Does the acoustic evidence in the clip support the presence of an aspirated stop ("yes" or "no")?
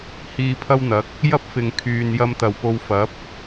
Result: yes